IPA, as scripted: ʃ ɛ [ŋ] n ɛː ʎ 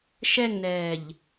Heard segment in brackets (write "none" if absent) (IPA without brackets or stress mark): ŋ